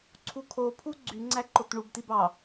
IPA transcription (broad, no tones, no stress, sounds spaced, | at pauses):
ǀʰ u kʰ o pʰ u ɡ͡ǀ y ŋ͡ǀ æ ǃ o t ɳ u b t i b ɑ